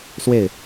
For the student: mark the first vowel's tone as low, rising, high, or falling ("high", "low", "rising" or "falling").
falling